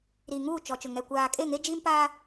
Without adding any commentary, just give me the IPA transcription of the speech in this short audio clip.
ɾ iː˨ ŋ uː˦˨ t͡ʃ ɔ˨ t͡ʃ ʊ˨ ŋ ɛ˨ kʷ aː˨ kʼ e˦˨ ŋ e˦ d͡ʒ iː˦ m p aː˦

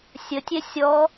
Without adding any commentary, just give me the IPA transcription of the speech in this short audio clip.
sʲ ə tʲ ɛ sʲ ɔ

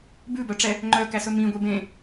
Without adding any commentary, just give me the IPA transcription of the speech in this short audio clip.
b ʉ b œ ʈ͡ʂ ɛ | ŋ͡ǃ œ k æ s ɵ m ĩ ɡʷ e b ẽ

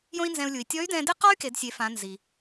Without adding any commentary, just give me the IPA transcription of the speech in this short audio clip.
j õ˥ i̯ n z ɛ̃˧ u̯ lʲ u˩ i̯ tʲ ɔ˧˥ y̯ d ɛ̃˧ d ɪ˥ q ɔ˥ y̯ k e˩˧ d sʲ e˩˧ f ã˩˧ n z i˩

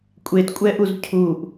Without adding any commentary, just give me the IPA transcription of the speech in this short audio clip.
kʷʼ e t kʷʼ ɛ ʔ u z cʰ u ʔ

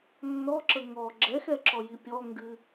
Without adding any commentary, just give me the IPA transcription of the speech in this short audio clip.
nː ɔ ǁ ə ŋ ɔ ɡ͡ǁ ɛ x ɛ ǁ ɔ j i pʲ ɔ ŋ ɡ ɨ

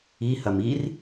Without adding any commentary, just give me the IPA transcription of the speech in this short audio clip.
i h ɐ m i r

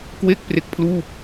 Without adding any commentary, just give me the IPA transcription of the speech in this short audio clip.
k w e˥˩ k̚ p r e˦˥ k̚ pʰ l uː˥˩ p̚

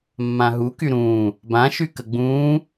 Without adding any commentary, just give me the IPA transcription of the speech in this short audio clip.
mː ã ɦ u k y ɾ ũː | b ã ʃ y k ə ɡ͡b ũː

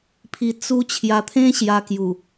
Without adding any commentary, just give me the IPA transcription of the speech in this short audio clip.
pʰ i˧ t͡s u˧ t͡ɕʰ j a˧ t̪ʰ ẽ˦ ɕ j a˧ k j u˨˩

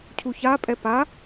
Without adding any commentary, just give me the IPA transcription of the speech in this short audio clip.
cʰ u ç a pʼ ɛ p a

